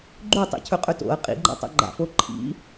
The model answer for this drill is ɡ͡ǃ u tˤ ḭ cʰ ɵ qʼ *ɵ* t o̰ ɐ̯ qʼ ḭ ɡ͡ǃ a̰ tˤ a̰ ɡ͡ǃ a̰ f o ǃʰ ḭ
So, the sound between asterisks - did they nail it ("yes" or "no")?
yes